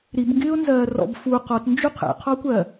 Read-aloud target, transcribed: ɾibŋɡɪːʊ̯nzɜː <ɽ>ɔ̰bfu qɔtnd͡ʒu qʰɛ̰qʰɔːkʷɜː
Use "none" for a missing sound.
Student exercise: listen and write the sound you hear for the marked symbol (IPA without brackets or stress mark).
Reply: r